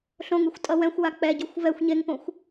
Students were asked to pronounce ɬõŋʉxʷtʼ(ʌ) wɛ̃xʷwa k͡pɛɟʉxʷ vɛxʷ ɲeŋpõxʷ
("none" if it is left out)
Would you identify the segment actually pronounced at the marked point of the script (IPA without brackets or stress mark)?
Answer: ʌ